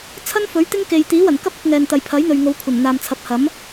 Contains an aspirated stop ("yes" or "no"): yes